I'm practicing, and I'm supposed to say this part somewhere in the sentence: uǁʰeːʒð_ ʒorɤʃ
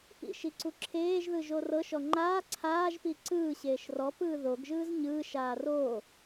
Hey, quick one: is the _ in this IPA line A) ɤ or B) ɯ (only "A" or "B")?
B